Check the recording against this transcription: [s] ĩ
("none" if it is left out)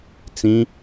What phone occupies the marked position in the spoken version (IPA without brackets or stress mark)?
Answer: t͡s